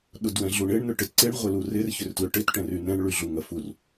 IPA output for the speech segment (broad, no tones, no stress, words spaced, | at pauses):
ɗʊdwɛ̃ɮuɳɪɳ nʏʈɪtǀɪɳ ʁʷɪlurɪr çʏrtlʏʈɪt ʈɛ̃rynɛ̃ɳ ɭyɮuŋɐfur